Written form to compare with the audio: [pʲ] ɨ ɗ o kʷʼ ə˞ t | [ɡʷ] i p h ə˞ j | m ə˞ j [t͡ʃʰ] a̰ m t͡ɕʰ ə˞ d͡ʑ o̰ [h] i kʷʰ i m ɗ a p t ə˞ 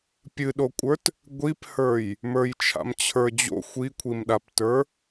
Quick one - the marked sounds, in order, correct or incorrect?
correct, correct, correct, incorrect: xʷ

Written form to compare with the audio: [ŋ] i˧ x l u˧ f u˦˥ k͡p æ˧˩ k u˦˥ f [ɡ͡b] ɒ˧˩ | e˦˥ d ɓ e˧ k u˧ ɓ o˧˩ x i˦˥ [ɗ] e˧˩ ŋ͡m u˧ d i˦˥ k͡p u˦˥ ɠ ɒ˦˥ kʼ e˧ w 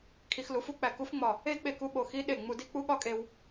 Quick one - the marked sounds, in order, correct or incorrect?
incorrect: kʰ, incorrect: ŋ͡m, correct

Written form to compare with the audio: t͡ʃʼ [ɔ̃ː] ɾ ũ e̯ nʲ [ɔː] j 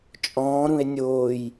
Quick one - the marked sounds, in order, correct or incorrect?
correct, incorrect: oː

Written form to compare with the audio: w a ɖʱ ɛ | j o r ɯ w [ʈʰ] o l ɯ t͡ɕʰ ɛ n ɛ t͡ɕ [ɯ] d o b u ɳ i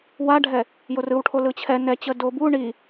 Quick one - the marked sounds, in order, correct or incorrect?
correct, incorrect: ə

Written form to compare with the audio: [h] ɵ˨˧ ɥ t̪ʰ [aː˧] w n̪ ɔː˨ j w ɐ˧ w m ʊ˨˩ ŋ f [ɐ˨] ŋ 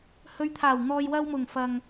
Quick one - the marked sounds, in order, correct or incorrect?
correct, incorrect: aː˨˩, correct

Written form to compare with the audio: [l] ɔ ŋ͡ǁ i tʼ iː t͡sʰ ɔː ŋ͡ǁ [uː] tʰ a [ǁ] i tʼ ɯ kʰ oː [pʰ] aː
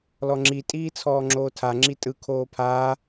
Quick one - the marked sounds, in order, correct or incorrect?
correct, incorrect: oː, incorrect: ŋ͡ǁ, correct

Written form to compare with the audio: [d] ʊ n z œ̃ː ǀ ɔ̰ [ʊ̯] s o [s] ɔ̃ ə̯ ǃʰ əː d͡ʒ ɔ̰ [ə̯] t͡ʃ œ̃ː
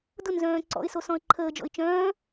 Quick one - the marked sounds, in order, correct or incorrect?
correct, incorrect: ɪ̯, correct, incorrect: ɪ̯

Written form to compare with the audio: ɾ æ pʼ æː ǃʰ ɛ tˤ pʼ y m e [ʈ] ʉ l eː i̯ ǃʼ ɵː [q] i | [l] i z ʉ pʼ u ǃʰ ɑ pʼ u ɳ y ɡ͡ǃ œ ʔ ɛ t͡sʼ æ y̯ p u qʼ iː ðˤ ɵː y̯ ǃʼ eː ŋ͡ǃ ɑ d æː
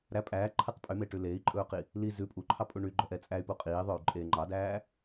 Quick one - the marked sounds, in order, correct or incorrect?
correct, correct, correct

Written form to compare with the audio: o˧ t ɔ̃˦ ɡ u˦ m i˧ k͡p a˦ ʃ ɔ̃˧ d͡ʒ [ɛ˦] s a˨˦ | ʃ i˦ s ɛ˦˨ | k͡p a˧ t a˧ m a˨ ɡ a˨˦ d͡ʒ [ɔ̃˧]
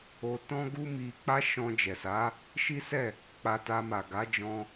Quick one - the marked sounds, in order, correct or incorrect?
incorrect: ɛ˨, correct

